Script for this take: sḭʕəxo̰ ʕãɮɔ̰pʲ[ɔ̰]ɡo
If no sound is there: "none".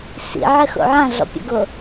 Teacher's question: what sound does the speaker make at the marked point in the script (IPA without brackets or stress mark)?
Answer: ɔ̰